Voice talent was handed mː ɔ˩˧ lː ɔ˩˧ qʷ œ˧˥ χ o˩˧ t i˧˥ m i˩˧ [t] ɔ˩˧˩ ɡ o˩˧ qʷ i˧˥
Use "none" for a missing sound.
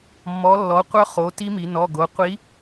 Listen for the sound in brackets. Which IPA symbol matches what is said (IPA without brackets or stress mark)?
n